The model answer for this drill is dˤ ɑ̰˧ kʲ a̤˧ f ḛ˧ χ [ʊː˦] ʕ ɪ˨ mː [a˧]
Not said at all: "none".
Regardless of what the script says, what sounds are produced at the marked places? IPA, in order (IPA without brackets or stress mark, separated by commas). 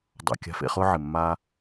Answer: ʊː˦, aː˧